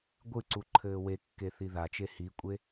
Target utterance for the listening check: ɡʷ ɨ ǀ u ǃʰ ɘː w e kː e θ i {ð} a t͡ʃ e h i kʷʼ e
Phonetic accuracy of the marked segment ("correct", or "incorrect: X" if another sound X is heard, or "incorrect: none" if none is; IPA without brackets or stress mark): correct